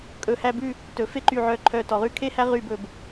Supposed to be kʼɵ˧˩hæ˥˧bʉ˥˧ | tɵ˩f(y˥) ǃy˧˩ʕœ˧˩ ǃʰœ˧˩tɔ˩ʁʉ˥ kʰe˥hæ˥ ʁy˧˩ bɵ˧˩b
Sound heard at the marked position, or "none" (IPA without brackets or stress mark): e˥